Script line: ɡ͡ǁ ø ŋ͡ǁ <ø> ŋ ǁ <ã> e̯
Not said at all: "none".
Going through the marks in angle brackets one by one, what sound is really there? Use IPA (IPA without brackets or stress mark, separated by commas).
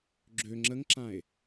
ə, ã